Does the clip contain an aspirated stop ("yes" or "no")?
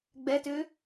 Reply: no